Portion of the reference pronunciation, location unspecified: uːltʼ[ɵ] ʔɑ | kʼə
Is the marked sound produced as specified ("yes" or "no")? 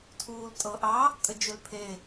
no